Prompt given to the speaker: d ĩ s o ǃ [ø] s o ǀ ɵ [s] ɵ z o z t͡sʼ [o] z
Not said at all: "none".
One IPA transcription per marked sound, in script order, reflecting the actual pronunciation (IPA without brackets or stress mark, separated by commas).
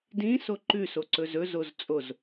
ʉ, z, o